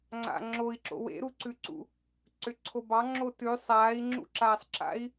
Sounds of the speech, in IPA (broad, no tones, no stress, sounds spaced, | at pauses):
ŋ͡ǀ a̰ ŋ͡ǁ o i̯ ǁ o̰ w ḛ ɾ u ǀ ʉ ǀ ṵ | ǀ ʏ ǀʰ o b ɑ ŋ͡ǁ o t ʉ sˤ aː i̯ ŋ͡ǁ ṵ ǁ aː sˤ ǁ a̰ i̯